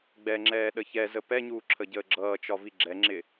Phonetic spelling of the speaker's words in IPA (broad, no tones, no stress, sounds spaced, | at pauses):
ɡ͡b ɛ ŋ͡ǁ ɛː ɗ ə ç ɛ z ə p ɛ ɲ uː ǁʰ ə ɟ əː ɡ͡ǁ ʌː t͡ʃ ɒ v i ɡ͡ǁ ɛ ŋ͡ǁ ɪ